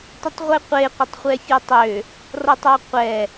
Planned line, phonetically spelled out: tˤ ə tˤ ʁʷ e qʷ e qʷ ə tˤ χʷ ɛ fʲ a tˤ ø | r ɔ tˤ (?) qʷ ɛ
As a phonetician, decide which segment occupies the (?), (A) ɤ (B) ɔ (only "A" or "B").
B